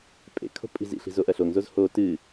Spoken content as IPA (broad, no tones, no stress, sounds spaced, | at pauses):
pʼ ḛ kʰ o̤ pʼ i̤ z ḭ ɬ i̤ z o ʔ ɐ ɬ o ŋ z o z h o t ɨ